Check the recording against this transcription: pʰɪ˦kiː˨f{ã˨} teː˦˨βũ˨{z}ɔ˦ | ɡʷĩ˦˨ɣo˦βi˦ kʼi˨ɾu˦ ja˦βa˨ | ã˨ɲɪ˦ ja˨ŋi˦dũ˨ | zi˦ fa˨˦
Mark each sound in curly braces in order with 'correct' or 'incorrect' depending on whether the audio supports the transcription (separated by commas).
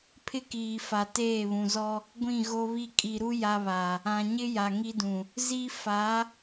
incorrect, correct